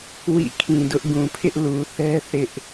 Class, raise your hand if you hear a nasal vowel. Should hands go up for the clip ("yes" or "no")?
yes